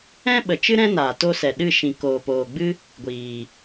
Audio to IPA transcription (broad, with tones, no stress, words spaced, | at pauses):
ɛ̃˦ɓə˨t͡ʃɨ˦ ɾɛ̃˦naː˨to˧sɛ˨ ɗɨ˦˨ ʃĩ˨koː˨poː˨ɡ͡bɨ˦ | ɡʷiː˨